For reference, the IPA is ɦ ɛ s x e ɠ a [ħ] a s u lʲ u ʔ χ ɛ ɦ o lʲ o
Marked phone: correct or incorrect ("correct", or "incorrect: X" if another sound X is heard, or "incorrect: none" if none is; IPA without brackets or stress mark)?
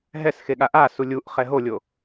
incorrect: ʔ